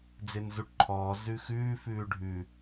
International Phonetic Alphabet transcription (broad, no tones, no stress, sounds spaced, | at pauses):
d͡z ɪː n z u ʈ ǃʰ ɔː z ʉ x ʉː f ʉː ɖʱ ʉ